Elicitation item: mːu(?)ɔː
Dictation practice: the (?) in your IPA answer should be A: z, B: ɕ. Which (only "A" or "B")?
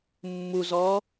A